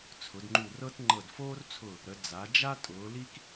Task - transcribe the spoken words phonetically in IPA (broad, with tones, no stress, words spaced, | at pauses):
t͡sʰʊ˩˧dŋ͡ǃu˧˩ rɤ˥t ŋ͡ǃɤ˧˩dfoː˥rt͡sʰʊ˧˩ | ɾə˩˧ d͡za˩˧d͡ʒa˥ tʼʊː˩˧ li˥k